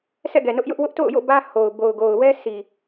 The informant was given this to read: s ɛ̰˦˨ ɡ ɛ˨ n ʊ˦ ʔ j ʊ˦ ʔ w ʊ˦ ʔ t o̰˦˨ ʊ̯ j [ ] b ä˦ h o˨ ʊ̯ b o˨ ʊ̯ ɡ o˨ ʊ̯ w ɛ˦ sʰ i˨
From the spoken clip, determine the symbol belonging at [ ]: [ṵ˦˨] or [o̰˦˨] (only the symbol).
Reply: o̰˦˨